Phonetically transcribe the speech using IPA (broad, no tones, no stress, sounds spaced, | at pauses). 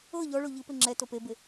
ɤ ʎ ɔ ɭ o ʎ ɯ p e ŋ͡ǁ ɛ t o p e b e